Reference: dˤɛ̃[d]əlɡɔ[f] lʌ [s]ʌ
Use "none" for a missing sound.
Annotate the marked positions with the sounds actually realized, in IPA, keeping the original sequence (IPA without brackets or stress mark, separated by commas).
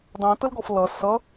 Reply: t, f, s